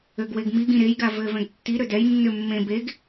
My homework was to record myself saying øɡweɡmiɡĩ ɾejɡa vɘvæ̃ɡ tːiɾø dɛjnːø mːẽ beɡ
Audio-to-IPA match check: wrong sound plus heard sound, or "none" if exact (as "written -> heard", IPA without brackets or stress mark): æ̃ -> ɛ̃